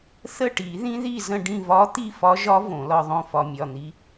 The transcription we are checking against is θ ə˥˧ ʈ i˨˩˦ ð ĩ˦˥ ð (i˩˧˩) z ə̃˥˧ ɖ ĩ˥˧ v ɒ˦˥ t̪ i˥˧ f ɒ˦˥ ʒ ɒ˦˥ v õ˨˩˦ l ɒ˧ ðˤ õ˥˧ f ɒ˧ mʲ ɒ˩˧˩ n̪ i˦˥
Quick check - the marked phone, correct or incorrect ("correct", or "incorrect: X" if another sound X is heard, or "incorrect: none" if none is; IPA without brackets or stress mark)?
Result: incorrect: i˥˧